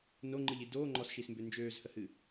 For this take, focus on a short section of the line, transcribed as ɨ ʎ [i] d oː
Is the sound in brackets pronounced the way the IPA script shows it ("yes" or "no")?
yes